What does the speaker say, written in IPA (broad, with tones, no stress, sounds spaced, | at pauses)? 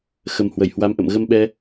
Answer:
x ə˨˩ m h w ə˧˩ j h w a˨˦ m ʔ ə̰˧˨ m ɣ ə˧ m ɓ ɛ˧